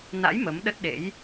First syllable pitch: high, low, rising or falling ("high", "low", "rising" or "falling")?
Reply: rising